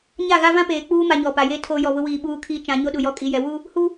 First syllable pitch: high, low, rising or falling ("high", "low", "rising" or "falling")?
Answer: falling